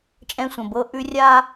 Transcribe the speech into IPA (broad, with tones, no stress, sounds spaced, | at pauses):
t͡ʃʼ ɛ̃˦ sʷ ə̃˨ b ɤ˦ ʔ ʉ˦ rʲ a˦